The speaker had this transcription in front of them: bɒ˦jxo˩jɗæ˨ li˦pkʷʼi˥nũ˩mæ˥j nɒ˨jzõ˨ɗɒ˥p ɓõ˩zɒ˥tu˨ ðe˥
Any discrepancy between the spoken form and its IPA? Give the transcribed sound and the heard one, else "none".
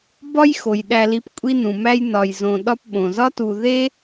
none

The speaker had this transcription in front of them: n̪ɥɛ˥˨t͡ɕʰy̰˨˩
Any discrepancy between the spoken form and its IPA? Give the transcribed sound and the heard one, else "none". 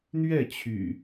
none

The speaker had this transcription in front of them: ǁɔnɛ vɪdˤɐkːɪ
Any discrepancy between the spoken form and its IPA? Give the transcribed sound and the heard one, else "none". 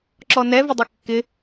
none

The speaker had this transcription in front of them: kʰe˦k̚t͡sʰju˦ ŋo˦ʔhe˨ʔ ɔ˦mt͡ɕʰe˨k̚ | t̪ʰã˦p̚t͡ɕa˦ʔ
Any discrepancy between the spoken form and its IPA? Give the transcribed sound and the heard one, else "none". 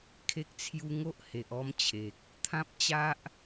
none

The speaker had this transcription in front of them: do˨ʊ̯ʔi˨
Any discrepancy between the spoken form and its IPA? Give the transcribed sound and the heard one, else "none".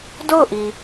o˨ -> o˦˨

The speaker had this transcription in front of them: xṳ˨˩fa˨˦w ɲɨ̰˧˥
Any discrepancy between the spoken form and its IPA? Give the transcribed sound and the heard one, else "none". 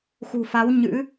none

